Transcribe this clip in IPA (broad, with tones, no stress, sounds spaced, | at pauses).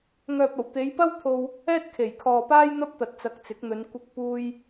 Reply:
ŋ œː˨ p̚ ɐ˨˩ w t̪ e˨˧ j p ɐ˥ w t̪ʰ o˧ w | ɛː˥ t̚ kʰ e˨˩ j kʰ ɔː˨ p aː˥ j n̪ ɐ˥ p̚ t̪ ɐ˨ t̚ t͡s ɐ˨ k̚ t͡s ɪ˨˥ k̚ n̪ ɵ˨˧ n kʷ ɪ˧ k̚ p uː˧ j